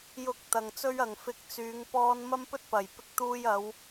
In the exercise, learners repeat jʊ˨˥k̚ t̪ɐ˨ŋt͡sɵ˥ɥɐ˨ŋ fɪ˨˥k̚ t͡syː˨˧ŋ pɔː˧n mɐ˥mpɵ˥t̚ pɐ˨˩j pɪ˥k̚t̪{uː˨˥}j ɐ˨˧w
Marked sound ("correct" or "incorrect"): incorrect